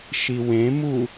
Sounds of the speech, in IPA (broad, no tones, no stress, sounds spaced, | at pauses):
ʃ i w ẽ m u